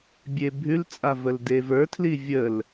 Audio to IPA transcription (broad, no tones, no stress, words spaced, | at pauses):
bʲebʱʉlt͡sʼa vəldevə˞tʰli vʲəl